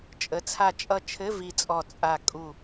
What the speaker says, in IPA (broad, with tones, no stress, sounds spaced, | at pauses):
t͡ʃʼ ə˩˥ t͡sʰ a˧˩ t͡ʃʼ ʌ˧˩ t͡ʃʰ ɘ˧˥˧ v i˧˩ t͡sʼ ɔ˧˩ t͡sʼ a˧˩ kʼ u˧˩